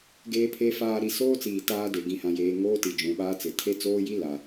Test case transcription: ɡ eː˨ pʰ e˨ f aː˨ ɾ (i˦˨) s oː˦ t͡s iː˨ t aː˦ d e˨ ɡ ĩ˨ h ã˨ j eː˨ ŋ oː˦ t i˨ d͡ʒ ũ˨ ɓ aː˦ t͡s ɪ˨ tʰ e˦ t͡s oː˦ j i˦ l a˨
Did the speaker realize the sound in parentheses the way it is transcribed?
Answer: no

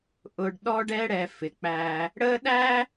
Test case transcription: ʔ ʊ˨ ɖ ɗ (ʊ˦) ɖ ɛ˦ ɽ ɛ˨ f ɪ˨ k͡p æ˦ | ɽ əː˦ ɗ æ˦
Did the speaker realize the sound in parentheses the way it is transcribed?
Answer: no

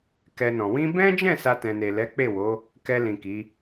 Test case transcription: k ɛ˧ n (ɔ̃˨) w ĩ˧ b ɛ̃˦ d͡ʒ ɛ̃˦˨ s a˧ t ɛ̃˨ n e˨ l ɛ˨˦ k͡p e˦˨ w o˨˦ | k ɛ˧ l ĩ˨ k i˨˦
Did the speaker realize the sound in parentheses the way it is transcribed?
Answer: yes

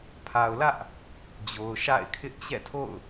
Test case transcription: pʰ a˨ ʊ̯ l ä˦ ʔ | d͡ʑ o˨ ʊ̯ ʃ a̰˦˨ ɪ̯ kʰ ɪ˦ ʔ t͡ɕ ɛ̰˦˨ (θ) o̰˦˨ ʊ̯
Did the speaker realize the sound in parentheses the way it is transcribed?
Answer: no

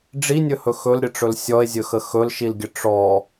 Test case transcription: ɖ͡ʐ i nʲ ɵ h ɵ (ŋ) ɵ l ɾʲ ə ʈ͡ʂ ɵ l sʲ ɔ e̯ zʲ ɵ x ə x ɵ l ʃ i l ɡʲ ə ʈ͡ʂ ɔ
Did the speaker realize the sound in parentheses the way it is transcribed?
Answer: no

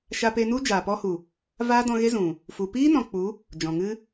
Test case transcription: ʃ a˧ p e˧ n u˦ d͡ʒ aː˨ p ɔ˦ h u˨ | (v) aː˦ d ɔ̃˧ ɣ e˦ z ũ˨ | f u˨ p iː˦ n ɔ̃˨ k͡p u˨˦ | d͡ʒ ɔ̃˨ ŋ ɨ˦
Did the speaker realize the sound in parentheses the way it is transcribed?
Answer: yes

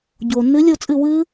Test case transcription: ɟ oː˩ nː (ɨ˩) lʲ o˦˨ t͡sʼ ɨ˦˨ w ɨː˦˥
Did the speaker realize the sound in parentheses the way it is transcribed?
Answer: no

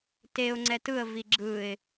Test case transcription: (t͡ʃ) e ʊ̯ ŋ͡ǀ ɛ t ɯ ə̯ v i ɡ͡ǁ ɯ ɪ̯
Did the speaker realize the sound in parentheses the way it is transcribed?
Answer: no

